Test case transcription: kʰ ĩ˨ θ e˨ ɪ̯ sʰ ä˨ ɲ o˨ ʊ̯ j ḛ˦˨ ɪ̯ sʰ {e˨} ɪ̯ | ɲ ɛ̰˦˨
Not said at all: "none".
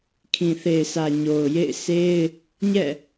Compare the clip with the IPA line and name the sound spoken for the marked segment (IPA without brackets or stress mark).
e˦